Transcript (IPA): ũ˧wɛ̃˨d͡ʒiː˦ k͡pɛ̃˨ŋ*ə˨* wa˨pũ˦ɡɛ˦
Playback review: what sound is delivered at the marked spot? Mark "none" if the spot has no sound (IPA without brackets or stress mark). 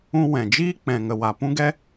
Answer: ə˨